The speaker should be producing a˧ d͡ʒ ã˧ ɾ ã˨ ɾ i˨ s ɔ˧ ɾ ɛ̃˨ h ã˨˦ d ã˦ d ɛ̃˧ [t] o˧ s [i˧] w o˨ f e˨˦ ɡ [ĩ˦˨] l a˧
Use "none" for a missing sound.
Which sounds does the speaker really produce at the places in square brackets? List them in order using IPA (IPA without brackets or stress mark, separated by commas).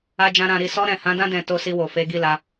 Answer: t, i˧, i˦˨